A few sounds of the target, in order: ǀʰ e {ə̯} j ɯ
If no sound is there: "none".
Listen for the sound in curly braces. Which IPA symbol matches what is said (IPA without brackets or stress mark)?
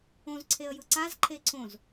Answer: ə̯